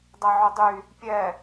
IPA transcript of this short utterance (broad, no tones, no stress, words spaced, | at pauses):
dˤɐʕʊdˤy | pʲɛ